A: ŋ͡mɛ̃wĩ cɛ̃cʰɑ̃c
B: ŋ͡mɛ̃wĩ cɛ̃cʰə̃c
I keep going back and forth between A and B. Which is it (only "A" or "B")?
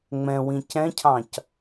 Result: A